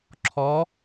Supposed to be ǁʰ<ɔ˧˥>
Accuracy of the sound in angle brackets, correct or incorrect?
correct